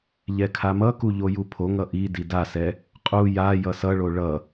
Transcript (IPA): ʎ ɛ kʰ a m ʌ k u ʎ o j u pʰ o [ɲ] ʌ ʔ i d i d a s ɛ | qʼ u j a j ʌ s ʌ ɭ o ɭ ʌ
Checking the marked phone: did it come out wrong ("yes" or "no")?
yes